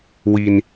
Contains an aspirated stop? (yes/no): no